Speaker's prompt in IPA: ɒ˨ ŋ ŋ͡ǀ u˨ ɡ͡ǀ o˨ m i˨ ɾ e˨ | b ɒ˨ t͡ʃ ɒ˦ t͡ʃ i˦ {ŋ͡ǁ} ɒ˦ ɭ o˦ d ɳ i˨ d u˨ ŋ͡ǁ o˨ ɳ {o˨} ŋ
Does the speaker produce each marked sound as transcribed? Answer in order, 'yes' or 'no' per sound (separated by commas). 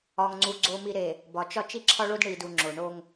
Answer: no, no